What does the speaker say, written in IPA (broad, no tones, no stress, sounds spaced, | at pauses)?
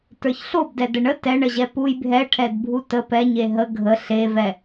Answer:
t ə˞ ç ɬ o b d ɛ d ə ɳ ə t ɛ ɳ ə ʑ ɛ p u j bʱ ɛ ʈʰ ɛ d bʱ u t ə p ɛ ɲ e ɦ ə ɡʱ ə ɬ e v ɛ